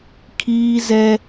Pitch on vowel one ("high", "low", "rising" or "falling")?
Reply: high